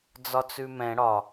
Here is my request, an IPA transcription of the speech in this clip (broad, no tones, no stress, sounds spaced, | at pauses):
d͡z ɒ t͡s ʉ m ɛ̃ ɽ ɒ